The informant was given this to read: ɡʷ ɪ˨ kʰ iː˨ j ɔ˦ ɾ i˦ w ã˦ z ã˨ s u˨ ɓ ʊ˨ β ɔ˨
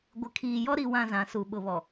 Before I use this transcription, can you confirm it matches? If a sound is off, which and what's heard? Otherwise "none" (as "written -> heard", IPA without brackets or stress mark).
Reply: none